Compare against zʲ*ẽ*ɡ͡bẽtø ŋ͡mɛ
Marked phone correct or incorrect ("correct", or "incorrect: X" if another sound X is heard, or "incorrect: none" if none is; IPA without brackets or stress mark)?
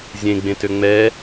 correct